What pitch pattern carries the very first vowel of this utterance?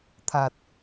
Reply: low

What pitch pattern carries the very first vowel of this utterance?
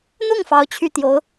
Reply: falling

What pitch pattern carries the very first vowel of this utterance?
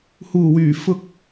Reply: low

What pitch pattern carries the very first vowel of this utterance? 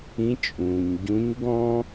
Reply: rising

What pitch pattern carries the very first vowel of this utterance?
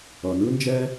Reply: low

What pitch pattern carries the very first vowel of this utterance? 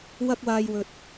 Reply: high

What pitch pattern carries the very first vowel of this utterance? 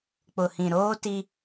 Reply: low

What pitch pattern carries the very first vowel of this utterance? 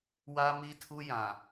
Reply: high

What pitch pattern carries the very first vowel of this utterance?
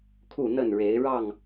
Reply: falling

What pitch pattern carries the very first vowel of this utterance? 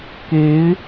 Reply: rising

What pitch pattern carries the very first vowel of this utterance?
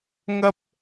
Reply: high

